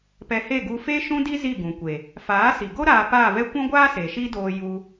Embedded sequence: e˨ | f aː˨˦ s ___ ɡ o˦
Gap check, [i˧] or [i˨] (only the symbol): i˨